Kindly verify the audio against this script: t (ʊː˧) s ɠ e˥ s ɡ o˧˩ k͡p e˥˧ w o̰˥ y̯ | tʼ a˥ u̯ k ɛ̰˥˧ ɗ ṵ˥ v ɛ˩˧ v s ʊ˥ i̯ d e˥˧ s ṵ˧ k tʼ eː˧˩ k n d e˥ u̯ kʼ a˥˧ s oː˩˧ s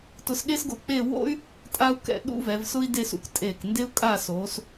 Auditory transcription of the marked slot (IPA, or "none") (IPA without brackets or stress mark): ʊ˧